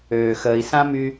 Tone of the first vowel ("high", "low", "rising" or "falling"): low